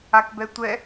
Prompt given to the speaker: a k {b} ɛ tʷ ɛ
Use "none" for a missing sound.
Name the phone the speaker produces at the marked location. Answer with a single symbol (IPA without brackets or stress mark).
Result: b